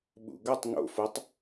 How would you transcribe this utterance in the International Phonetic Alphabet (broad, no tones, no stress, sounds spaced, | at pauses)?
ɓ ṵ ɡ ʌ tˤ ŋ o̰ f o tˤ